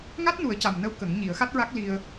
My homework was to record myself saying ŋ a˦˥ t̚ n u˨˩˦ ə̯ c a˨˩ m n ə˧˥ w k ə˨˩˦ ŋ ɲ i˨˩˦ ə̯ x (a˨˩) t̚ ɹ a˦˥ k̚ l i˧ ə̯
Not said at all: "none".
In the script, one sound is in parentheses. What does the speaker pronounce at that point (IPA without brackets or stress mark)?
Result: a˦˥